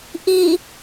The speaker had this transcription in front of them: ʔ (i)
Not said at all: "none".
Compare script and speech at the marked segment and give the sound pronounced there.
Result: i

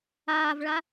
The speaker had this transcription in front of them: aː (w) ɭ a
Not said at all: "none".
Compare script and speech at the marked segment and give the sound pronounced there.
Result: v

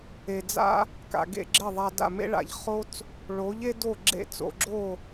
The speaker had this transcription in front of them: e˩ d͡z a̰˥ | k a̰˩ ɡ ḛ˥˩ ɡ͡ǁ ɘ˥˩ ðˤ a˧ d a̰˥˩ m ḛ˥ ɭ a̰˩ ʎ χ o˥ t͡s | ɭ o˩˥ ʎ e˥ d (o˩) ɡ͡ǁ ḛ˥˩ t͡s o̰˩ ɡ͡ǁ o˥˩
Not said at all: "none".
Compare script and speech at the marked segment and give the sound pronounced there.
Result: o˥˩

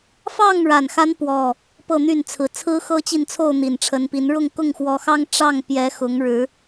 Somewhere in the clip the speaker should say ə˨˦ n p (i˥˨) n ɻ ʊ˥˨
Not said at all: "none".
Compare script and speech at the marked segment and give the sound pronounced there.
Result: i˨˦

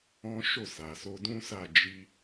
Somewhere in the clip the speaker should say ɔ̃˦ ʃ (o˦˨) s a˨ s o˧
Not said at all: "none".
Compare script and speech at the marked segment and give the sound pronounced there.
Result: o˦˨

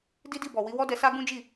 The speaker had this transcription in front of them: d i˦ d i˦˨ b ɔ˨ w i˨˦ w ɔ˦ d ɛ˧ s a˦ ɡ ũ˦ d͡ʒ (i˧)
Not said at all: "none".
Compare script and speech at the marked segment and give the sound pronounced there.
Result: i˦˨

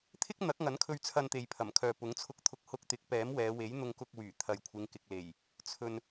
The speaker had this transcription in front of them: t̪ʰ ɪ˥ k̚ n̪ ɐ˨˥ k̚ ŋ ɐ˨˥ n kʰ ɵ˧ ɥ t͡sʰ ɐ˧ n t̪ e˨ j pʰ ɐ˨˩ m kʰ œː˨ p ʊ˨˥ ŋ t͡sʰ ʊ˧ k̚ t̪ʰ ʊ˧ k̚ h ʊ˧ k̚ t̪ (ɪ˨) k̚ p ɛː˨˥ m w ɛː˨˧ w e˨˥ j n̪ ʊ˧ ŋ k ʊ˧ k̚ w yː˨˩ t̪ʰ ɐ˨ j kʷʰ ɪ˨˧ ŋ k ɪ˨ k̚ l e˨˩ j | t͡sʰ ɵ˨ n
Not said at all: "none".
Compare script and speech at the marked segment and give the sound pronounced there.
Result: ɪ˨˥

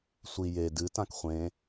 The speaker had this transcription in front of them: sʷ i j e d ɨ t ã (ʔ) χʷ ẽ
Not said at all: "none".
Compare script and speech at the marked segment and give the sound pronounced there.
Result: k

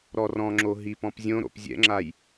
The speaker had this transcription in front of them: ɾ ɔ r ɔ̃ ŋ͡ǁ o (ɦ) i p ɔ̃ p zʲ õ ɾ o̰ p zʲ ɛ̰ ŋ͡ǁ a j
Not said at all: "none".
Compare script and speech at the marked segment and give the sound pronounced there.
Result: ɦ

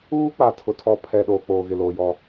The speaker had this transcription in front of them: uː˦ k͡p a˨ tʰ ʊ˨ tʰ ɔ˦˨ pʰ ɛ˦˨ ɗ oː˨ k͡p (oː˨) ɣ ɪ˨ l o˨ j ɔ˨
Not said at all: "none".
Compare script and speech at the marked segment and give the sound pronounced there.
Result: oː˨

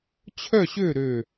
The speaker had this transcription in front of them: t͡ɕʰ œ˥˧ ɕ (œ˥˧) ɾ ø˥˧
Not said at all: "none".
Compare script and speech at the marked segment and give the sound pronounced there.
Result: ø˥˧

